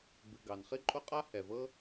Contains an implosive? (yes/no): no